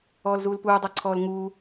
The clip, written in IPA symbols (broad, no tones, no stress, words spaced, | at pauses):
ɔːlzuːlpuː dˤaǀʰɔːlŋuː